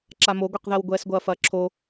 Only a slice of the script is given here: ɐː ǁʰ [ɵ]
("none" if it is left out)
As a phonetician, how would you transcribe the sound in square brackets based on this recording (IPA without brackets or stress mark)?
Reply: o